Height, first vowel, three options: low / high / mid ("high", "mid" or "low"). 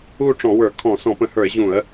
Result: high